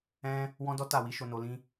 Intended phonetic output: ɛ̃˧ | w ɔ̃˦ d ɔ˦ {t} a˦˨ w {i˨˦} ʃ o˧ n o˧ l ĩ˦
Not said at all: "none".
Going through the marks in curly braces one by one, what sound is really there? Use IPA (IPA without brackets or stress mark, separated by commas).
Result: t, i˨˦